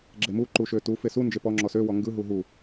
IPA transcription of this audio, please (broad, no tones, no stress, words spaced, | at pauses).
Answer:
ɡ͡ǁemu ǃuʃøtu fesu nd͡ʒepɔ ŋ͡ǁɔsø wɔŋɡɯ ɦuɦu